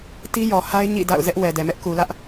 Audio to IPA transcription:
t i˦ j ɔ˨ h a˦ ɪ̯ ɲ ḭ˦˨ d a̰˦˨ ʊ̯ z ɛ˦ ʔ w ɛ˨ d ɛ˨ m ɛ˦ ʔ k u˨ l ä˦ ʔ

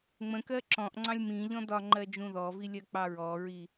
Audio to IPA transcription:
ŋ͡m ə̃ k ɜ ǁ ɔ̃ ʔ ŋ͡ǀ ɑ̃ lʲ m ĩ ʎ ɔ̃ d ɒ ŋ͡ǃ ɜ d͡ʒ ũ ð ɔ v i lʲ ɜ k͡p ɑ ɹ ɔ ɹ i

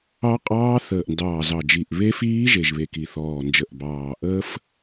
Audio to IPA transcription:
ɑ˦˥ qʼ ɑː˦˥ θ əː˨˩ ʔ n d ɑː˨˩ z ɑ˨˩ d͡ʒ i˨˩ ʔ β e˦˥ f iː˦˥ ʒ e˨˩ ʒ β e˨˩ k i˨˩ θ ɔː˨˩ n d͡ʒ ə˨˩ ʔ b ɑː˨˩ ʔ əː˦˥ f

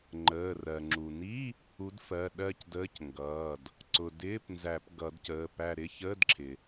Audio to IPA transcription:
ŋ͡ǃ əː˩˧˩ r ɜ˩ ŋ͡ǁ u˩ n i˧˥˧ | u˨˥ d f ɜ˩˧˩ ɗ ɜ˦˨ c d əː˧˥˧ c ŋ ɡ ʌː˩˧˩ d | ǀ ʊ˩ d ɪː˧˥˧ p n z æ˨˩˦ p ɡ ʌ˨˩˦ d c əː˩˧˩ p æ˦˨ ɾ ɪ˧˥˧ ç əː˧˥˧ d ǁʰ ɪ˩

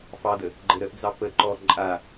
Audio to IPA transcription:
f ɑ d̪ ə | ɡ͡ǃ ə ɾ ə ʔ d͡z ɑ p ə ǃ ɔ ǃʼ a

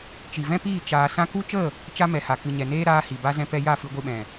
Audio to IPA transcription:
t͡ʃ i˨ v ɛ̃˦ p iː˦˨ t͡ʃ aː˧ s ã˧ k u˦ t͡ʃ ə˦˨ | t͡ʃ a˦ m ɛ˨ h a˨ k ɨ˨ ɲ ɛ˨ n eː˦ ɾ aː˦ h i˨ b a˦ z ɛ̃˧ p ɛ˧ j a˦˨ f ɨ˧ ɡʷ ɨ˧ ɓ ɛ̃˨

